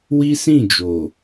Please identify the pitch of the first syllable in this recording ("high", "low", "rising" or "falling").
high